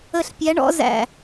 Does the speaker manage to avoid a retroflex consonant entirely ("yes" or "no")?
no